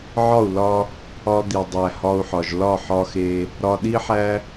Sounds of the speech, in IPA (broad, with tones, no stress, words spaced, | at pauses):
ʕɒ˦˨u̯lɒ˧ | ɒ˧d̪i˨dˤæ˨ hɒ˧u̯ħɒ˨ʒ lɒ˦˨ħɒ˧xe˧ | ɾɒ˧ɗi˦ħæ˦